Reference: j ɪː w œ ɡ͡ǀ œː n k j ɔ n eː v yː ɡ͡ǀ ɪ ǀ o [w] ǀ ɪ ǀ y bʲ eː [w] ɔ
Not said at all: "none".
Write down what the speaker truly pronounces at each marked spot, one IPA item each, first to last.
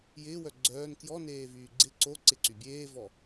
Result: none, v

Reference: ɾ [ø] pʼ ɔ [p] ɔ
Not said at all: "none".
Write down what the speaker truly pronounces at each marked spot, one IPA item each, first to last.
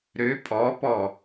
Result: ø, p

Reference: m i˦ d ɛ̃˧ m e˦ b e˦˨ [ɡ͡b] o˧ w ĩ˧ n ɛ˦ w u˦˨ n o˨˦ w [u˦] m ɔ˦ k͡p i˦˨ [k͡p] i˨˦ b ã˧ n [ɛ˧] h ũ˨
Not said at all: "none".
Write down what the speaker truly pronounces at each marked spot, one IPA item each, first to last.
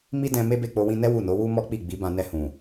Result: k͡p, u˦, ɡ͡b, ɛ˧

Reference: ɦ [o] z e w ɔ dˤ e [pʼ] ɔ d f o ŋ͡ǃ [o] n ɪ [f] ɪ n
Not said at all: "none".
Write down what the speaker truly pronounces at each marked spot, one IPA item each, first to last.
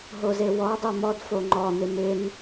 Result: o, m, ɔ, m

